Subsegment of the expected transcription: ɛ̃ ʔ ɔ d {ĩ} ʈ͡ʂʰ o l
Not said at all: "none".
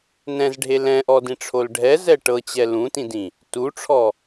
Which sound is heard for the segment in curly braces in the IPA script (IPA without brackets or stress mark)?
ĩ